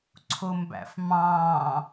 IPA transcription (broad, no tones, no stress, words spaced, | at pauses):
ǀʰʊmbæ̰fmɑ̃ː